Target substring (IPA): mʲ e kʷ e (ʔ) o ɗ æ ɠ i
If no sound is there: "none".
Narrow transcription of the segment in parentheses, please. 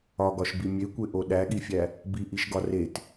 ʔ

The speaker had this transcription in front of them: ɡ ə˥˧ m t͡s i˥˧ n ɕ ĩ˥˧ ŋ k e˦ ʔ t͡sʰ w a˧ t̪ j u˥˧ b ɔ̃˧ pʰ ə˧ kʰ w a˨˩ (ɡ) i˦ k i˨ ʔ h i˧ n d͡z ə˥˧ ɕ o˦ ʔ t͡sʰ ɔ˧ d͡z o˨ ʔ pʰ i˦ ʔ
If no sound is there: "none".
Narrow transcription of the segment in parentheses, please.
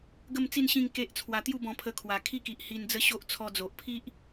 kʰ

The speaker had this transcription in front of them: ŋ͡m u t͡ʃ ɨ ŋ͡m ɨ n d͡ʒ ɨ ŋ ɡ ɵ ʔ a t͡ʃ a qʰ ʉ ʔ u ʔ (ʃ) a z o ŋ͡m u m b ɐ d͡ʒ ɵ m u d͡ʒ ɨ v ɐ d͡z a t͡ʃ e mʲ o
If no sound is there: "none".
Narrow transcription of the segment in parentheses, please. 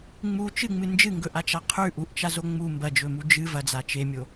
t͡ʃ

